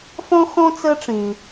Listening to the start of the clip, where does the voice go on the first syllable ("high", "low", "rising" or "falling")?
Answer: high